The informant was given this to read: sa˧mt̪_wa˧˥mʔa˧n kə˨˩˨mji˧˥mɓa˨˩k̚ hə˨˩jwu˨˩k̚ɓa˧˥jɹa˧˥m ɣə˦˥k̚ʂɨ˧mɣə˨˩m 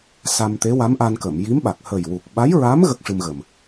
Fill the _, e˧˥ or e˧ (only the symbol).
e˧˥